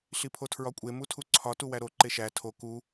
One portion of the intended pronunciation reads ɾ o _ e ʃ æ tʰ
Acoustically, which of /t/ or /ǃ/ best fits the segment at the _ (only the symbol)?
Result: ǃ